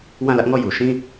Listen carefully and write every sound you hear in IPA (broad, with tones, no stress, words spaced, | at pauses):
wã˦˨lä˦ʔŋɔ˦˨ ju˨ʃĩ˦